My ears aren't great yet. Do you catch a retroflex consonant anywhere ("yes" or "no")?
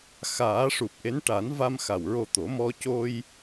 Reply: yes